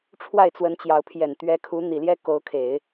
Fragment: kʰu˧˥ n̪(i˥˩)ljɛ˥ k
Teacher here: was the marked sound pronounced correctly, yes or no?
no